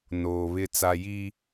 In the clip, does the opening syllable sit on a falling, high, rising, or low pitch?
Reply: low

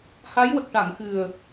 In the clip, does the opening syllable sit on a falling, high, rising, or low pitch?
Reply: rising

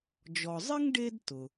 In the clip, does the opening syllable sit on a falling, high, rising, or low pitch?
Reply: low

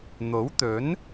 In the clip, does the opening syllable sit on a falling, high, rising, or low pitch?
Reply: rising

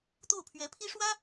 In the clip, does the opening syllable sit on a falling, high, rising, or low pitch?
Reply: falling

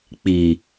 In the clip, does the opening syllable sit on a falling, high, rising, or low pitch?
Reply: low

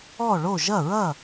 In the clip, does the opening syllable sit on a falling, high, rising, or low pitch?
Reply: falling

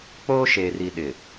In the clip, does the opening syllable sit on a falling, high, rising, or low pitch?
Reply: high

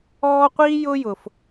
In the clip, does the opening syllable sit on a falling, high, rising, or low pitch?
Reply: high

